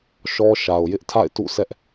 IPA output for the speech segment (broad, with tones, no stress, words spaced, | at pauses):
ʃɔ˦ʃa˨ʊ̯ jɪ˦ʔtʰa̰˦˨ɪ̯tṵ˦˨sɛ˦ʔ